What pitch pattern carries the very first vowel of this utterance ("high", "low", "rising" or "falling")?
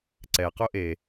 low